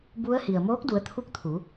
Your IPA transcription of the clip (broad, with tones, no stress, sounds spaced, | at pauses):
b u˧˥ ə̯ h i˩ ə̯ m oː˧˥ k̚ d u˩˧ ə̯ t̪ʰ u˧˥ k̚ t̪ʰ uː˩˧